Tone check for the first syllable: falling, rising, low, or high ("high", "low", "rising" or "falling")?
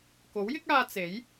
rising